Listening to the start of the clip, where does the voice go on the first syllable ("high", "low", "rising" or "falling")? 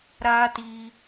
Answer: high